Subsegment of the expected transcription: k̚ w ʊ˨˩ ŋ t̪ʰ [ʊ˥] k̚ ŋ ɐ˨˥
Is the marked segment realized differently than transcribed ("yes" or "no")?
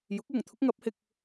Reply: no